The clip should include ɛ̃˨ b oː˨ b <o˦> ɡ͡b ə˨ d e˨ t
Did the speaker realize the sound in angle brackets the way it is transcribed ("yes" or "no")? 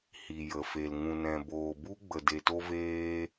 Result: no